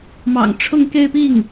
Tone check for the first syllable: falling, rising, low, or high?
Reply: low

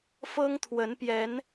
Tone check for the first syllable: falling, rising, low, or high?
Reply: high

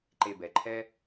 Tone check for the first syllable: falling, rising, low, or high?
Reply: low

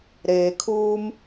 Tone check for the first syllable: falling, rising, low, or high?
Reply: low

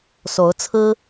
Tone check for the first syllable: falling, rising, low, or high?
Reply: rising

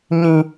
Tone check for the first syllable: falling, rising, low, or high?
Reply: high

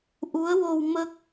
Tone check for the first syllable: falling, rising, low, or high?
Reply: rising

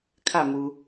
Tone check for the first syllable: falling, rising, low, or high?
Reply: falling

